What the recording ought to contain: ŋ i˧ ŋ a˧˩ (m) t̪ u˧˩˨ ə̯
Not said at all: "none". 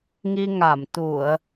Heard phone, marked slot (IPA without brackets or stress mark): m